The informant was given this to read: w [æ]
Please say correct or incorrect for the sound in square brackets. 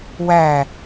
correct